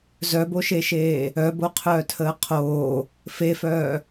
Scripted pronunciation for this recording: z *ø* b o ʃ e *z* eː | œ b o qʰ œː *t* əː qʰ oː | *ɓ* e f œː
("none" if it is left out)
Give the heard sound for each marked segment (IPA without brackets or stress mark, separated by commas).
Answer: œ, ʃ, tʰ, f